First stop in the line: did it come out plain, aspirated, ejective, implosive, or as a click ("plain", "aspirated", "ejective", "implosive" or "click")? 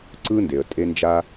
click